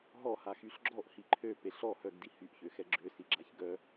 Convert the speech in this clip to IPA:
ɦ ɔ h a x y ɬ ɡ͡ǁ ɔ ʔ h i ǃʰ ø p e ɬ ɔ h œ ɡ d i h y ʔ ç ø x ɛ ɡ͡ǁ ø s i ɡ͡ǁ a ç ɡ œ

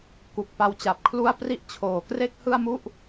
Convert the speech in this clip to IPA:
k u˨˩ k̚ p a˧ w t͡ɕ a˨˩ p̚ kʰ l u˥˩ a̯ p r i˦˥ ʔ t͡ɕʰ oː˨˩ k r e˥˩ k̚ h ɯ˥˩ a̯ m u˥˩ ʔ

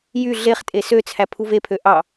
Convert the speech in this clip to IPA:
j y ɮ e χ tʼ e s ø t͡sʰ æ pʰ u v e pʰ ø ʔ ɑ

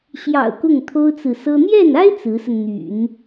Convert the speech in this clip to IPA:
ɕ j ɑ̰˨˩ ʊ̯ k ʊ˥˩ ŋ t̪ʰ o˥ ʊ̯ t͡s ɹ̩˨ s ɤ˥ n̪ j ɛ˥˩ n a˥ ɪ̯ t͡s ɹ̩˧˥ s ə˧ n n̪ y̰˨˩˦ n

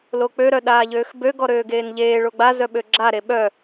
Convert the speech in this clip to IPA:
l o k͡p ø ɾ œ ɗ aː ʎ øː x b ø ɡ ɔ ɾ øː ɡ eː n ʎ eː ɭ o ɡ͡b a z œ ɓ ø ɡ͡ǁ a ɾ e ɓ œ

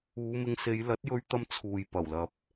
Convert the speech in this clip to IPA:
uː˨˧ m ɪ˧ ŋ s e˨˧ j l ɐ˨˥ t̚ j ɵ˧ ɥ t̪ ɐ˧ m t͡sʰ uː˨ j p ɐ˨˩ w l ɐ˨ p̚

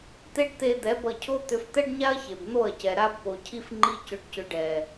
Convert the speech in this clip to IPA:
t̪ e˦ ɖ t̪ e˧ d̪ ɛ˨˦ b ʌ˧ cʰ o˦ t̪ ʏ˧ f t̪ ɛ˦ ɖ ɲ a˦ ɐ̯ ç e˨ b n̪ o˦˨ ɐ̯ c ɛ˨ ɾ a˦ b p o˨ cʰ i˦ f ŋ͡ǃ i˦ c ʏ˧ ɖ c ʏ˧ ɖ ɛ˨

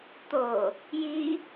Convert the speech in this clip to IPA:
t̪ o | j i

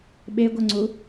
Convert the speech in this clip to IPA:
ɓ e ɡʷ ɐ ŋ͡ǀ u

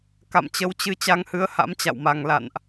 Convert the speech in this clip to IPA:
k a̰˧˨ m t͡ɕ ə˨˦ w t͡ɕ ɨ˨˦ t͡ɕ a˧ ŋ h ɨ˨˦ ə̯ h a̰˧˥ m t͡ɕ a̰˧˨ w m a˨˩ ŋ l a̰˧˨ n ʔ

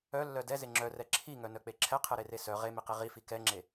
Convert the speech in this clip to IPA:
œ lː œ d ɛ z e ŋ͡ǁ œ r ɛ ǁʰ i ŋ œ n œ k͡p e ǁʰ ɛ qʰ ɛ ɾ e r e s œ ʁ e m i q i ʁ i f i k ɛ ŋ͡ǁ e

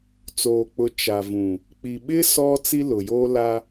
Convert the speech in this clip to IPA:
t͡s oː˨ k͡p ʊ˨˦ t͡ʃ a˨ v ũ˨ | k͡p i˨ ɓ ɪ˦ s ɔ˦ t͡s i˦ l ʊ˨ j oː˦ l a˦

